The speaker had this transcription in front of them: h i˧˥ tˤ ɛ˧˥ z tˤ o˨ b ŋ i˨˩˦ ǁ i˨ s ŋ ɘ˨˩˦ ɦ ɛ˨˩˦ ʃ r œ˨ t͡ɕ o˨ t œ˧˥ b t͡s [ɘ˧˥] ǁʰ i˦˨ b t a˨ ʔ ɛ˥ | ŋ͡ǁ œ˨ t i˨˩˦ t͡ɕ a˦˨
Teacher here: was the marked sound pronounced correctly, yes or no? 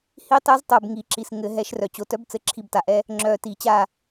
yes